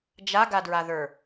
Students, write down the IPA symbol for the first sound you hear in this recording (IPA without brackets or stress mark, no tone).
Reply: d͡ʒ